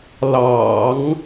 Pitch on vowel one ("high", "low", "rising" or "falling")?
low